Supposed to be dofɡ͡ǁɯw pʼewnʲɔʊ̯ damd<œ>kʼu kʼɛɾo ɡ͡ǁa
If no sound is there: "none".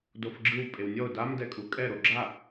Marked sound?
ɛ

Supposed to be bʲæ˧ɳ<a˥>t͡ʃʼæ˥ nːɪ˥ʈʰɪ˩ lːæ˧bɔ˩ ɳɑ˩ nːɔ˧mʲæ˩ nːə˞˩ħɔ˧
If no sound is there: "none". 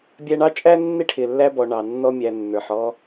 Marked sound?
ɑ˥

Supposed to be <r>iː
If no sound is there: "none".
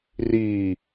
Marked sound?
r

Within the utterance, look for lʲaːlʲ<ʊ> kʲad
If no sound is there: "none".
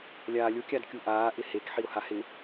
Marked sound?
ʊ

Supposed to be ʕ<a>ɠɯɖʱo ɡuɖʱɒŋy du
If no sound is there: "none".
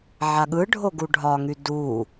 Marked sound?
a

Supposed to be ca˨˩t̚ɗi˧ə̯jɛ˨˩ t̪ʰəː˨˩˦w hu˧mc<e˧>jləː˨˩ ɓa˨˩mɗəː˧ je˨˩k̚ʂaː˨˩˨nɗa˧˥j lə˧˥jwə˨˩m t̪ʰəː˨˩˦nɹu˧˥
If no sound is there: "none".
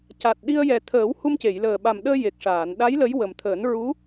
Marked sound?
e˨˩˨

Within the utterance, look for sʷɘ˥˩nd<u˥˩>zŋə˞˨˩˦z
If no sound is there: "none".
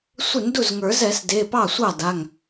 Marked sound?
u˥˩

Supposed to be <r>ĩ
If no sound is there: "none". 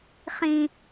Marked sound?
χ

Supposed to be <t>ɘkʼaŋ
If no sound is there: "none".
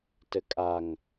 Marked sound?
t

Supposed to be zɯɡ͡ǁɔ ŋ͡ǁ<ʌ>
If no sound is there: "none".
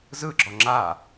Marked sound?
a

